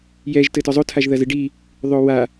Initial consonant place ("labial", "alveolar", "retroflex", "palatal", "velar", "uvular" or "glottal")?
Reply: palatal